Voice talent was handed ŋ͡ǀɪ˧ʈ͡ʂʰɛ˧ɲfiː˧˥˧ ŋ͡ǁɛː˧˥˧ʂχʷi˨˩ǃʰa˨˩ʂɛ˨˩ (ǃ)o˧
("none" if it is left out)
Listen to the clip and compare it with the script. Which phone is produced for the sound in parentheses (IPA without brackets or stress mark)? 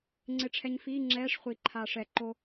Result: ǃ